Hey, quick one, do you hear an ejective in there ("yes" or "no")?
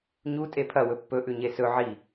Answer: yes